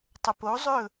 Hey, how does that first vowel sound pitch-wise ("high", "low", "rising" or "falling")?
low